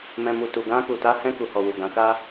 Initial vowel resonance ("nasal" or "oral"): nasal